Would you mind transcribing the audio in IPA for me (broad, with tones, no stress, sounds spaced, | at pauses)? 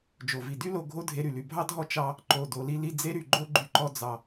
d͡ʒ o˩ v i˩ d y˥ l o˧ ɡʱ o˥ dʱ e˧ ɾ y˩ l y˩ bʱ ɑ˥ dʱ ɔ˥ t͡ʃ ɑ˧ | ǃ o˩ d o˩ l i˧ l i˧ d͡z e˥ ɾ y˩ ɡ͡ǃ o˥ ɡ͡ǃ y˧ ǃ ɔ˧ d͡z ɑ˩